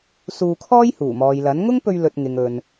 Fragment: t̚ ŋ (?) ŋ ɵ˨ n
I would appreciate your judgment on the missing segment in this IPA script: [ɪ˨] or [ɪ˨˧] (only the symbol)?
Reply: ɪ˨